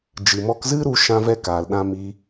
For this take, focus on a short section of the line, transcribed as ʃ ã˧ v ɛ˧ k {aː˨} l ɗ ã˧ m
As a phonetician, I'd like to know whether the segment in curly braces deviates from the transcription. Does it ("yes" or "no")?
no